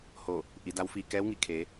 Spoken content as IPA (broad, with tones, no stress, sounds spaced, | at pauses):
h oː˧˩ | ʔ i˩˧ d a˧˥ w f iː˧ k ɛː˧˥ w ŋ i˧˩ kʰ eː˩˧